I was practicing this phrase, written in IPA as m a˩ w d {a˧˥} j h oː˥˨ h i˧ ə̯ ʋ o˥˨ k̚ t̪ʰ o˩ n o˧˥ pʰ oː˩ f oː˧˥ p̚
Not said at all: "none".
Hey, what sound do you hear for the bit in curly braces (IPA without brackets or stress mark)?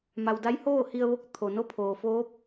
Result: a˧˥